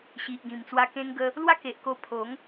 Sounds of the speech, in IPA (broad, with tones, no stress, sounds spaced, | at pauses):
ɕ i˨ ʔ ɡ ĩ˨˩ m t͡s w a˧ k ẽ˧ ŋ ɡ ə˧ | l w a˦ k e˨ ʔ k o˧ pʰ o˨˦ ŋ